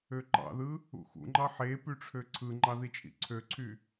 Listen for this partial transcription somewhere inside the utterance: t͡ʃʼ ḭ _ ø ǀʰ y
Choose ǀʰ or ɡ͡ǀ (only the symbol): ǀʰ